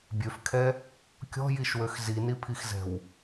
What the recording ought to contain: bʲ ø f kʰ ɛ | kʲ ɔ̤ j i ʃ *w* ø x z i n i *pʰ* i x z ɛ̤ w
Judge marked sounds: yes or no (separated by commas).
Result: yes, yes